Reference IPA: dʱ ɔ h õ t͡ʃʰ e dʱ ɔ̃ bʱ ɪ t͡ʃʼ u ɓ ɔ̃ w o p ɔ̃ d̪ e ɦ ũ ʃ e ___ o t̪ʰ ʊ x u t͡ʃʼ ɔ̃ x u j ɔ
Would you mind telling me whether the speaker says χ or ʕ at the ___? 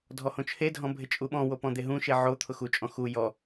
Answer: ʕ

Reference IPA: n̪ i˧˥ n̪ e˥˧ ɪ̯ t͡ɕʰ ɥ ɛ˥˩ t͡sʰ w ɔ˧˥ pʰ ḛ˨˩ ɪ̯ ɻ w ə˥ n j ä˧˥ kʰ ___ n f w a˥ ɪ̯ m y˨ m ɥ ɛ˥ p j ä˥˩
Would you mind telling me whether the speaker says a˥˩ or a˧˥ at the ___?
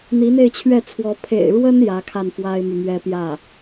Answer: a˥˩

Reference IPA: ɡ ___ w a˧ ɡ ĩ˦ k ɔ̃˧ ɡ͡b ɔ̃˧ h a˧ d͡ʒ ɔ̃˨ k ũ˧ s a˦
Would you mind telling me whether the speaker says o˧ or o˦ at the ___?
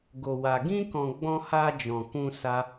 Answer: o˧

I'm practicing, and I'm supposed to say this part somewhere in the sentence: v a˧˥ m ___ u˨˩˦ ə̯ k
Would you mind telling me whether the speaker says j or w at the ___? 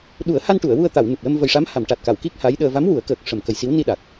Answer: w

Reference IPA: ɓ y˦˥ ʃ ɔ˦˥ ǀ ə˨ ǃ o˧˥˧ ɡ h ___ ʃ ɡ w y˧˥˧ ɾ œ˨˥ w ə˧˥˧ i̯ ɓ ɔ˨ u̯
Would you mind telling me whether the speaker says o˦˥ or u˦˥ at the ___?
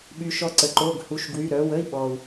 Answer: u˦˥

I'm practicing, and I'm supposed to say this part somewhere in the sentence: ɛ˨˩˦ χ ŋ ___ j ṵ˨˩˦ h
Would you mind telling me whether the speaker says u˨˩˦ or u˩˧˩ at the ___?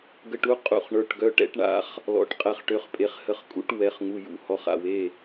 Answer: u˩˧˩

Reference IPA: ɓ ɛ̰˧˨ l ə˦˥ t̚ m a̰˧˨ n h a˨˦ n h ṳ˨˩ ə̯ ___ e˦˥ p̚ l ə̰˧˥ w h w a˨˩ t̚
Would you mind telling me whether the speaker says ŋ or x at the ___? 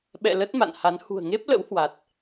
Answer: ŋ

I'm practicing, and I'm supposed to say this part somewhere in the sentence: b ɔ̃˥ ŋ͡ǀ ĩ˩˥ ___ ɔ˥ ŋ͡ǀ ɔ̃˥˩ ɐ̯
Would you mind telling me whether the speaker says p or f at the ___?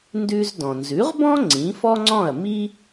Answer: f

